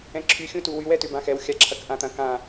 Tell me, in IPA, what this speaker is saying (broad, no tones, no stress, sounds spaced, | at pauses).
ɛ̃ ǁʰ y xʲ ũ t u w y w ɛ t ʏ b ã x ɛ w xʲ a ǁʰ ɐ k ʔ ã t̪ ɐ̃ k ã